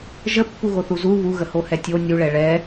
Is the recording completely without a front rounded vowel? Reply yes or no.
yes